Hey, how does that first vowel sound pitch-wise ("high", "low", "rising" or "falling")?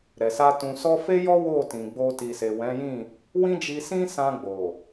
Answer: low